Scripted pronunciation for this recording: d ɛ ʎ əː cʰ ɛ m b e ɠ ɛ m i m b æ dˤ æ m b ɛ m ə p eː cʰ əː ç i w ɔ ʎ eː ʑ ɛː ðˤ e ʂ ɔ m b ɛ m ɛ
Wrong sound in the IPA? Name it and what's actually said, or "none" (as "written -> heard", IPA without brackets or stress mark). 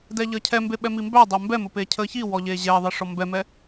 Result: ɠ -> ɓ